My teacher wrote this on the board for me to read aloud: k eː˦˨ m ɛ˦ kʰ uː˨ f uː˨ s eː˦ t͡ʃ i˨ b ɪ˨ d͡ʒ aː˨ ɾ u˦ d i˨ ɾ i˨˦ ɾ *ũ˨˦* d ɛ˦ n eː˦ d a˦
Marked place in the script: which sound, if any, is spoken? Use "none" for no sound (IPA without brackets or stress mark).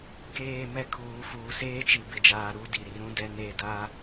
ũ˦